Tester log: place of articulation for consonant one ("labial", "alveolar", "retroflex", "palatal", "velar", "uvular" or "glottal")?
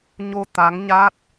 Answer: palatal